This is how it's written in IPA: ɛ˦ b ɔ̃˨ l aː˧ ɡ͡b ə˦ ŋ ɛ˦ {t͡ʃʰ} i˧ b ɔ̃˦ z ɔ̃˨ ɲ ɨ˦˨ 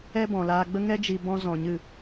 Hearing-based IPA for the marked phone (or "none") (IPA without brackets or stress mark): d͡ʒ